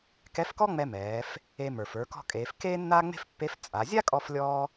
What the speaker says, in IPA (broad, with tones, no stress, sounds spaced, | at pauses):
k ɛ˧˥ f k ɔ˥ ŋ͡m ɛ˧ m ɛː˩˧ f | e˧ m ə˞˩ f ə˞˩˧ k ɔ̤˧ kʼ eː˩˧ f k eː˥ nː aː˥ ŋ͡m e̤˥ f pː e˧˥ f t͡sʼ a˩˧ zʲ a˥ kʼ ɔ˧ f lʲ ɔː˧